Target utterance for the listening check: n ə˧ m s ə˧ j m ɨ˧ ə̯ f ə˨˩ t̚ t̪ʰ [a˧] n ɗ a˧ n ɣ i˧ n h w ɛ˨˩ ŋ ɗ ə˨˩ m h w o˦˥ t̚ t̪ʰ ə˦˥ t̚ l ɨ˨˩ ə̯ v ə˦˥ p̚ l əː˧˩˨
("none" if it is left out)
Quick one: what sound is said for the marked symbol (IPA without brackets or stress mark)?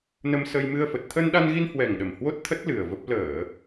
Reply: ə˧